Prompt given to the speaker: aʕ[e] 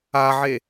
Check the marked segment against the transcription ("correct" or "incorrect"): correct